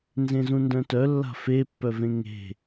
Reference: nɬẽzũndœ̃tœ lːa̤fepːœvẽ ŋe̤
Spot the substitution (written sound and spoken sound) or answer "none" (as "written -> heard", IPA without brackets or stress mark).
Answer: ɬ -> z